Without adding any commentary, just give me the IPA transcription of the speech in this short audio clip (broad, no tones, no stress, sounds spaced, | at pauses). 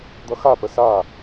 d̪ ʌ x a p ə s a